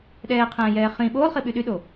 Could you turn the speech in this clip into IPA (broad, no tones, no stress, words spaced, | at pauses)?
ɗɛːqʰɛ̃ːjɛː χĩ ɓoːlˠχi ɓyɗyɗo